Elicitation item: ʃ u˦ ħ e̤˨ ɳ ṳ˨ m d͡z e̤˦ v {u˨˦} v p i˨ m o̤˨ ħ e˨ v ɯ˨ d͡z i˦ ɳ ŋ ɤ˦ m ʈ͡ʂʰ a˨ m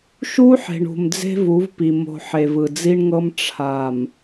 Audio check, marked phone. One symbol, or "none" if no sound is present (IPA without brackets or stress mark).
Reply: u˨˦